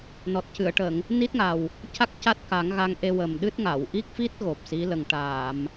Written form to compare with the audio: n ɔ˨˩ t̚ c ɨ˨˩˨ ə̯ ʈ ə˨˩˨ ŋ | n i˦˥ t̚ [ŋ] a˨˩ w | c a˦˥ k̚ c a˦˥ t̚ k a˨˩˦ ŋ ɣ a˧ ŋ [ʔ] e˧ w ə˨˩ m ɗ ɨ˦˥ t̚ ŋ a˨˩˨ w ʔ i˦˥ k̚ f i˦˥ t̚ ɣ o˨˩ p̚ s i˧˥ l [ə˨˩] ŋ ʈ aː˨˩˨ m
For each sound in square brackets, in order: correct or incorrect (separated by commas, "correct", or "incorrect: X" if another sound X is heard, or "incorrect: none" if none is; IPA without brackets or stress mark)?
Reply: correct, correct, correct